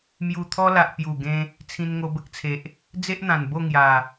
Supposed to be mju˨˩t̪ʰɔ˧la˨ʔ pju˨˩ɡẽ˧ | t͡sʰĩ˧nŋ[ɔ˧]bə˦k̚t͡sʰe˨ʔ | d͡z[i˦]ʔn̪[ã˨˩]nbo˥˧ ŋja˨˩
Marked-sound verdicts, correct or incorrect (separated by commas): incorrect, incorrect, correct